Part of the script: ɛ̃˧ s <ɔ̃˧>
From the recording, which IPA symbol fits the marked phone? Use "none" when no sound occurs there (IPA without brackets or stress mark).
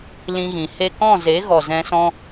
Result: ɔ̃˧